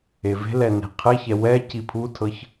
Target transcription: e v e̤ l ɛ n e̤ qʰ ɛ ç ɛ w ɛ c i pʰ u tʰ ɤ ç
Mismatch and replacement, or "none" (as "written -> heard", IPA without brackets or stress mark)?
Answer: none